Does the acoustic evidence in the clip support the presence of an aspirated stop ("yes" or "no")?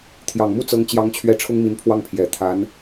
yes